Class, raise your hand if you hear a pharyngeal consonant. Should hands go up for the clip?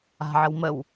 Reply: yes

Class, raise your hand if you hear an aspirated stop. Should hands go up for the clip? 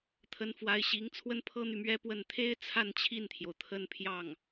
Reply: yes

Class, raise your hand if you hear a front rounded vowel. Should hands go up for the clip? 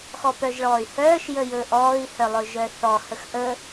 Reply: yes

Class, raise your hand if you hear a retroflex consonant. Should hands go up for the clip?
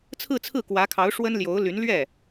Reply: yes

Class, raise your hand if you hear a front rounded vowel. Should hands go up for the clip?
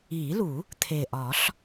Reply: no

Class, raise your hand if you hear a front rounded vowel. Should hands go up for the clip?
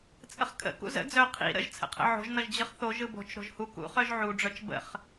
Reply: yes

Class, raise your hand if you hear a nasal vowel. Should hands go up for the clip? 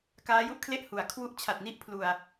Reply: no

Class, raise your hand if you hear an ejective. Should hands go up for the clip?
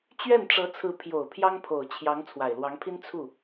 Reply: no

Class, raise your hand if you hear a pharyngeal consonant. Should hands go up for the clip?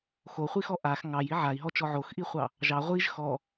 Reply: yes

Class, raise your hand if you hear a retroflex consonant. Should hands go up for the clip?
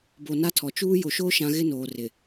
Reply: no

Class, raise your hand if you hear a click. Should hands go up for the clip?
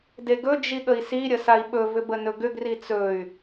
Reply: no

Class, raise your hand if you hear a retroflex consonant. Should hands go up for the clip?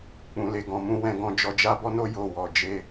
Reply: no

